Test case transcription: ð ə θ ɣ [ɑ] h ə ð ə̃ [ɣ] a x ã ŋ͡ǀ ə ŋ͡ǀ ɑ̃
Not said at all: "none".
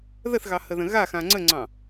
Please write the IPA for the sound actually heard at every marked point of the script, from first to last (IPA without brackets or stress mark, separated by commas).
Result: ɑ, ɣ